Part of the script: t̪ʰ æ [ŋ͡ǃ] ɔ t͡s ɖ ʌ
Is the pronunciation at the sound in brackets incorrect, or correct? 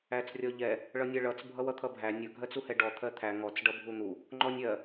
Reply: incorrect